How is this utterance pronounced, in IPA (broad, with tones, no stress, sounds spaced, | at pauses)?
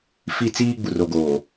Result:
f i˦ t͡s iː˦ ɡ͡b u˨ r o˨ ɡ oː˨